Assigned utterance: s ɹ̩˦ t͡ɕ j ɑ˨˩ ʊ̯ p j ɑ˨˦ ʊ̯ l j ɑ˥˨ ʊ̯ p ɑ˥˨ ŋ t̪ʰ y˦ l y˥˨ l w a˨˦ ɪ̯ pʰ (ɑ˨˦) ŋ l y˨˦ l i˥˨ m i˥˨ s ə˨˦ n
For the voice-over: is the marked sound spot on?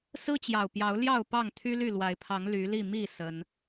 yes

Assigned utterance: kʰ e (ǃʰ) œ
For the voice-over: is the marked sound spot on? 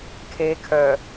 no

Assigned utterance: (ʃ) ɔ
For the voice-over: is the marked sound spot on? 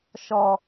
yes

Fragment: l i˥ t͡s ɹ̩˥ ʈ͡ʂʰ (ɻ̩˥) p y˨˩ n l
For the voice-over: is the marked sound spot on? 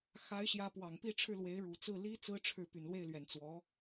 no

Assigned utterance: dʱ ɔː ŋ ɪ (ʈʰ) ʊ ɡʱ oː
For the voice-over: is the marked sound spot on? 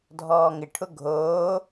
yes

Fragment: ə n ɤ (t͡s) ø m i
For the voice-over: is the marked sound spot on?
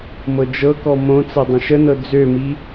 no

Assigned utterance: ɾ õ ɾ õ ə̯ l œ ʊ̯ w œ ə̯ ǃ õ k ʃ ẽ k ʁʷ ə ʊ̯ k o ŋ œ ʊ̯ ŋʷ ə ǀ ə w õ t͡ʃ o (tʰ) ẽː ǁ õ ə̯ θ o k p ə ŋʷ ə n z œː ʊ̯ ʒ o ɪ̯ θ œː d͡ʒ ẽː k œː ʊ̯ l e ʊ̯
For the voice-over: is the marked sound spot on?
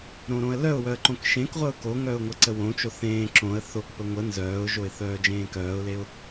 no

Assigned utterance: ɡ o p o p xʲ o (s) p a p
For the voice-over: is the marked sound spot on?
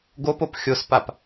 yes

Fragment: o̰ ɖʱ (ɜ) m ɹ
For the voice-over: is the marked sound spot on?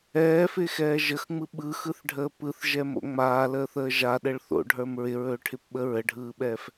no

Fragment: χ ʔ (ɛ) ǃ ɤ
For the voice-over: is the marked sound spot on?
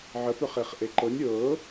no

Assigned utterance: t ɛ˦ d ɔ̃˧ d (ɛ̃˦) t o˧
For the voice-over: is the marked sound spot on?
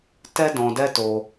no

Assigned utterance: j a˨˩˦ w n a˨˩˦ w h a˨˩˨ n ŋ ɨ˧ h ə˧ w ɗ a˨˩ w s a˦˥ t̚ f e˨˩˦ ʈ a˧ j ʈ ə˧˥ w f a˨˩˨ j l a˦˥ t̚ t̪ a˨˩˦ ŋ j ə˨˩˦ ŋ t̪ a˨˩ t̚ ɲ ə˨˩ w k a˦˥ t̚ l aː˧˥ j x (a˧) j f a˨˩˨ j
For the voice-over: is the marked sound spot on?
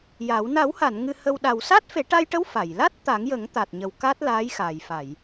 no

